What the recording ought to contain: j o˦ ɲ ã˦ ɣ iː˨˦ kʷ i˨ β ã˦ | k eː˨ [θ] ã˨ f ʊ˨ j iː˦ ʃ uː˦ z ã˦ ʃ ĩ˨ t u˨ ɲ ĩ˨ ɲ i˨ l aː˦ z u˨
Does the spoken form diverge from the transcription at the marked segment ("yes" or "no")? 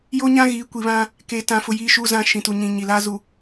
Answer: yes